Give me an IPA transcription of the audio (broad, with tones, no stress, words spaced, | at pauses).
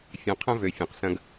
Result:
fʲɐ̃˨ qʰɐ̃˦ vø˨fʲɐ̃˨q sɐ̃˦ɡ